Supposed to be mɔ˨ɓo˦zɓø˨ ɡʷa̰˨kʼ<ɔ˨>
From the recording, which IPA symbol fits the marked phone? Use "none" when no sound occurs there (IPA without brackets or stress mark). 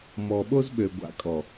ɔ˨